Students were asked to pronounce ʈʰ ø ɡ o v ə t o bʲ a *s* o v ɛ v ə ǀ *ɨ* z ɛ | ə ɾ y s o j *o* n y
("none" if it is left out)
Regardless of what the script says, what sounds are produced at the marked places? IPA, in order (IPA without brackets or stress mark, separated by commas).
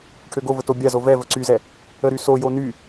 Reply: z, y, o